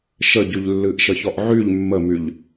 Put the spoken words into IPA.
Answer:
ʃ ə ɟ y ʎ lː ɨ ʔ ʃ ə ç ɔ ʔ ʕ y ʎ mː ə m y ʎ

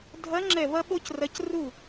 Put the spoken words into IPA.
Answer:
dʱ ɐ˧˥ ŋ͡ǁ ɛ˧˩ β ɐ˥ ɓ o˥ c r ɐ˧˥ c r u˥˩

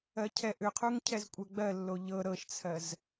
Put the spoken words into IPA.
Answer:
ɜ cʰ ɛ ʔ ʏ qʰ u ŋ cʰ ɛ z kʷʼ ɜ ɡ͡b ɜ lː o ʎ ɤ ɾ ɤ ʃ t͡sʰ ɜ z

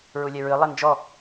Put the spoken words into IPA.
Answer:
ɹ u lʲ ɛ ɹ ɨ lˠ ɛ n d͡ʒ ɔ

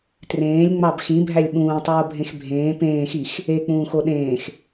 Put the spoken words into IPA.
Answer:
t r ẽː lʲ ŋ͡m ɑ b x ĩ bʱ æ lʲ ɓ ũː tˤ oː bʱ ẽ x bʱ ẽː p ẽː x i x | e k͡p ũː x o ɗ ẽː x

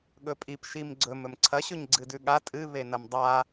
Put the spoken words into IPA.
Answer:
ɠ ɵ pʼ i p ʃ i m ɡ͡ǀ ɵ m ɵ m ǀʰ ɐ ɕ ɵ ɲ ɡ͡ǀ ɨ d ʉ ɠ a tʼ ɨ β e n ɐ m dˤ a

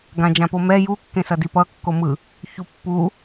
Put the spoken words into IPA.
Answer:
ɡ ã d͡ʒ ã p o m ɛ j u kː ẽ s ʌ d i p ʌ kː o m ɯ | ç u pː u

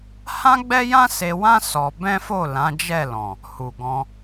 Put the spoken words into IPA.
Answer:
h ã˦ ɡ͡b ɛ˦ j ã˦ s e˧ w ã˦ s ɔ˧ b ɛ̃˦ f o˦˨ l ã˨˦ d͡ʒ ɛ˦˨ l ɔ̃˨ | h u˨ ɡ ɔ̃˧

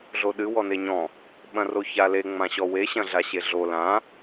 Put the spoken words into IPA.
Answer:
ɮ o ɗ ɨ w ɔ n e ɲ ɔ̃ | ɓ ɐ̃ r o ç a l e ŋ͡m ã ɕ ɔ w e ɕ ɐ̃ ɮ a ɕ e ɮ o l ã

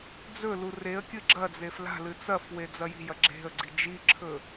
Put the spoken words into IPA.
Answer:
d͡z ɵ l u r e ə̯ kʲ ɨ ɡ͡ǁ ɐ d͡z e f l a̤ l ɨ t͡s ɐ f w e d͡z ɐ j i̤ j ɐ ɡ͡ǁ e̤ ə̯ ɡ͡ǀ i d͡ʒ i ǁʰ ɵ

